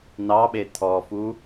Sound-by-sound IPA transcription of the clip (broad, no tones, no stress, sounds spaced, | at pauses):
n ɑ ɓ e tʰ ɔ f u